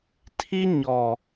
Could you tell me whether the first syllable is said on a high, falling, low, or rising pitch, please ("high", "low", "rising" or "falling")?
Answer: high